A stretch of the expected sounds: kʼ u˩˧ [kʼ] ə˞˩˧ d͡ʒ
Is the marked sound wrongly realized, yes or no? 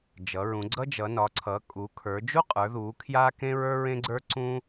yes